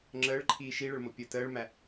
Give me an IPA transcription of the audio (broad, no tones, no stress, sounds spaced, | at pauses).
ŋ͡ǁ əː ɭ ǃʰ iː ʃ i ɭ ə ɭ m o pʲ əː t əː ɭ m æ